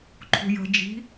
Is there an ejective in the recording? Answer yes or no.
no